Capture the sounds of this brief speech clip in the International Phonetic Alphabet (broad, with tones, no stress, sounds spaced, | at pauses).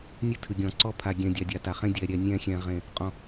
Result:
nʲ ɨ˦ tʰ ɨ˨ ɡʲ ɔ̃˨ ǀ ɔ˦ pʰ a˨ ɡʲ ɛ̃˨ dʲ a˨ dʲ a˨ t a˨ χ ẽ˦ dʲ ɛ˨ ɾʲ ɛ˨ nʲ ɛ̃˦˨ xʲ ɛ̃˨ ʁ ẽ˨ | qʼ ɔ̃˨